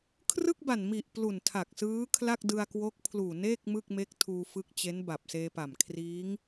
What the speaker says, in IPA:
kʰ r ɯ˥˩ k̚ b a˨˩ n m i˨˩ ʔ p l u˨˩ n tʰ a˨˩ k̚ s ɯː˦˥ kʰ l a˥˩ k̚ d ɯ˧ a̯ k w o˦˥ k̚ pʰ l uː˨˩ n eː˥˩ k̚ m ɯ˥˩ k̚ m e˦˥ k̚ tʰ uː˧ f ɯ˦˥ k̚ t͡ɕ e˦˥ n b a˨˩ p̚ s eː˧ p a˨˩ m kʰ r iː˦˥ ŋ

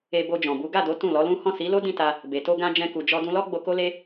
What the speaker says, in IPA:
e˧ b o˧ d͡ʒ ɔ̃˨ b u˨˦ ɡ a˦˨ d o˨˦ t ũ˦˨ l ɔ˨˦ l ũ˦ h ɔ̃˦˨ s i˨˦ l o˦ d ĩ˦˨ t a˧ | b e˨ t o˧ ɡ ã˧ d͡ʒ ɛ̃˧ k u˨ d͡ʒ ɔ˧ d ũ˧ l ɔ˦ ɡ͡b o˧ k o˦ l e˦

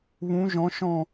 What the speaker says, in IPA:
β ũ˨˦ ʒ ɔ̃˨˦ ʃ ɔ̃˦˨

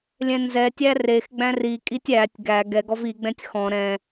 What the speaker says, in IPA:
lʲ ɛ̃ n z ɛ tʲ æ r e x ɡ͡b æ̃ r i kʼ i tʲ æ tʲ ɡ æ ɡ ɛ ɡ ɔ v i ɡ͡b ɛ̃ tʲ x ɔ̃ ɾ ɛ̃

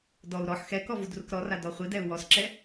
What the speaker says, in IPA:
d ɔ u̯ ɾ ɔ ħ x ɛ k ɔ v u d r u k ɾ ɔ r a d ɔ χʷ i d ɛ u̯ w ɔ s ǁ ɛ

